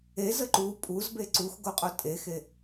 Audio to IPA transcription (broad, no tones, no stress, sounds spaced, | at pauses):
e z ə ǃ u pʼ u z b e ǀ u x ɡ o qʼ o tʼ e x e